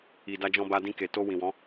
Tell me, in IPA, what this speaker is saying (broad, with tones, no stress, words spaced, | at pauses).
i˨da˧d͡ʒɔ̃˧ ba˧dĩ˧ ke˨ to˧ wĩ˨wɔ̃˨˦